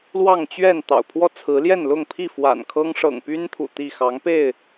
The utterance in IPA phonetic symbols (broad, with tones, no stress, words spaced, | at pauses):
lwɑ˥˨ŋ t͡ɕɥɛ˥˨n t̪ɑ̰˨˩ʊ̯pʰwɔ˦ t͡sʰɹ̩˨˦ljɛ˥˨nlʊ˥˨ŋpʰi˥˨ fwa̰˨˩n kʰɤ˦ŋ ʂɤ̰˨˩ŋpy˦nt̪ʰṵ˨˩ t̪i˥˨ xɑ˨˦ŋpe˥˨ɪ̯